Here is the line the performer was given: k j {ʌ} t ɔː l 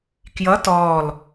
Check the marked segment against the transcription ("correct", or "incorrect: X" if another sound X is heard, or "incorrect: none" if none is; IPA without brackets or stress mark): correct